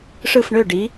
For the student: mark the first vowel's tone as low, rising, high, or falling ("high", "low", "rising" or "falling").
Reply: falling